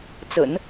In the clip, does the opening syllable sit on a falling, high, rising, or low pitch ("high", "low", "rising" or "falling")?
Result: low